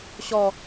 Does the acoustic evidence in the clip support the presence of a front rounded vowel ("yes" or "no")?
no